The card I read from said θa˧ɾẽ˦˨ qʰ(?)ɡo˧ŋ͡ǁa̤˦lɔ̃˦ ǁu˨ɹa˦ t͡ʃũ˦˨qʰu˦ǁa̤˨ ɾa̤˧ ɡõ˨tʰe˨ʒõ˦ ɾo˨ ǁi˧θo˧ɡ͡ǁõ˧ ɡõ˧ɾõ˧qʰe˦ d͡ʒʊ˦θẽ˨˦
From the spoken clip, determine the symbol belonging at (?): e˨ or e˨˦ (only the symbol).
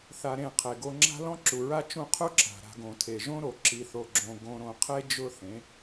e˨